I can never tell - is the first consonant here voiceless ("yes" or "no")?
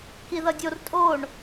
yes